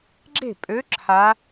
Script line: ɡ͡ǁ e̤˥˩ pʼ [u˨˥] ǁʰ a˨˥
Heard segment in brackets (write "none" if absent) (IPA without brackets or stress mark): ø˨˥